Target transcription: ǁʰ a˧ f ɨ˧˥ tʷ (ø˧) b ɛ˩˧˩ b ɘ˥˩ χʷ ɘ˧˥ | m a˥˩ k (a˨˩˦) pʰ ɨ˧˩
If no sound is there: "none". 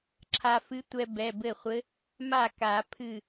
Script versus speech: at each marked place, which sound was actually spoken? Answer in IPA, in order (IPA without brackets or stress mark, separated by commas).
ɛ˧, a˨˩˦